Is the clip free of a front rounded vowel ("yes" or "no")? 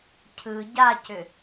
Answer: no